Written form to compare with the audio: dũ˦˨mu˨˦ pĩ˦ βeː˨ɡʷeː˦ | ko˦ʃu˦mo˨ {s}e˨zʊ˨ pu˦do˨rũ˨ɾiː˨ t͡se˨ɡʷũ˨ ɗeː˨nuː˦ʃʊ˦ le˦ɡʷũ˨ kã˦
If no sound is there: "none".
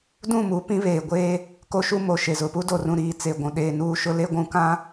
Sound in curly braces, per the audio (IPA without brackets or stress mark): ʃ